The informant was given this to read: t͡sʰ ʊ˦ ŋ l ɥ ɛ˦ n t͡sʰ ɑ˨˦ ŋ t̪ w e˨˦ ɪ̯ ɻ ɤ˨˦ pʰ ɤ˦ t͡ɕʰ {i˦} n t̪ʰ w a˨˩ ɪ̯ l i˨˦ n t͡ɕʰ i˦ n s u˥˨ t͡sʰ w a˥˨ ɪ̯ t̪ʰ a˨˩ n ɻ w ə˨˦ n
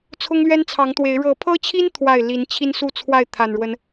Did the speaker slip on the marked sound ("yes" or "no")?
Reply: no